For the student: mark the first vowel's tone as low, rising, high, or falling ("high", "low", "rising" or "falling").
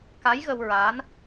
rising